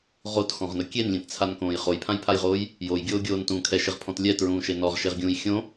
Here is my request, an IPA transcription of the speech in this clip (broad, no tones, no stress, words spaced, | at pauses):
ʁotxɔ̃ʁnʊ kʲenlʲẽtt͡sʰankõːj χojpʰãjpʰajʁoːj | jojɡʲoːɡʲoːntũː kʰɛʃɪʁpʰɔ̃t lʲɛtɹũːʃe nɔʁʃeʁɡʲũːj xʲõ